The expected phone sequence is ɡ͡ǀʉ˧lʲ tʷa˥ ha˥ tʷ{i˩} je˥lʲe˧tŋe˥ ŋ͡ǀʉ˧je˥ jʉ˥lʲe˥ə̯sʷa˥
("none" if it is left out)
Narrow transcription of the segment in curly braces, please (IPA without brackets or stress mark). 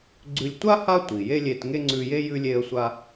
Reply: i˩